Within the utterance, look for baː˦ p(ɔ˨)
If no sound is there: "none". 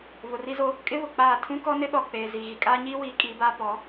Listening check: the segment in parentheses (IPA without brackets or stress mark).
ɔ˨˦